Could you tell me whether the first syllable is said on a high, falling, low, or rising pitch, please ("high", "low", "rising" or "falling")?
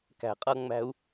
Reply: low